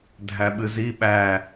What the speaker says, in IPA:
dʱæɓɨzi ɓæ

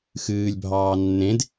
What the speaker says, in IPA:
xɨːlʲbʱɑː nːẽd

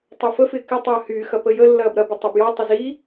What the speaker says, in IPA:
tˤɐfəfɪː kɪtˤɐː hyːxɐ pəjəlːɐːb ɾɐbɪ tˤɐbjɔtˤɪ zi

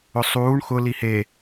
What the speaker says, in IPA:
ʊsˤuːɳ xʊ lihe

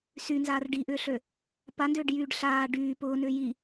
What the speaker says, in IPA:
synzaːr ɖiʔʏːɬø | pandʏːɖjyːɖ ɬaː ɖyː pʊːnʏː ji

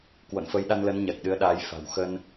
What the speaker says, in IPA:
kwo̰˧˨nfə˨˦jɗa˧nlə˨˦n ɲa˨˩k̚ɗɨ˨˦ə̯ɗaː˨˦j fa̤˨˩wxə˧n

